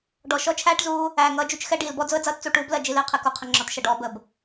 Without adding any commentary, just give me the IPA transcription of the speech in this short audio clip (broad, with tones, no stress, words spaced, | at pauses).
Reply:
ɖɔ˨ʃɔ˦t͡ʃʰæː˦ʈzuː˦ | æː˨ŋʌː˦d͡ʒu˦t͡ʃxɛ˦ ɖiː˨lbɔ˦d͡zʊ˦ə̯ d͡zʌː˦tt͡su˨ ʈuː˦blɜ˨ d͡ʒi˦lɪː˦qʰɪ˨ ku˨qʰə˨ŋ͡ǁɒ˨tʃʌ˨ ɖɔː˦bə˨˦b